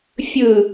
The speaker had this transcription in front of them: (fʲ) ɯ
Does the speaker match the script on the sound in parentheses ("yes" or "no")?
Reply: yes